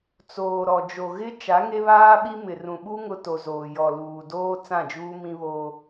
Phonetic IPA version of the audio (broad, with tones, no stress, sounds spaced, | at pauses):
t͡s oː˨ ɾ ɔ˨ d͡ʒ o˨ ɣ ɪ˦ t͡ʃ a˨˦ ŋ e˦ β aː˦ ɓ i˦ m ɪ˨ r ũ˨ ɓ u˦ ŋ ʊ˦ t o˨ z oː˨ j ɔ˨ l uː˨ d oː˦ t͡s ã˦˨ d͡ʒ uː˦ m ĩ˦ β oː˦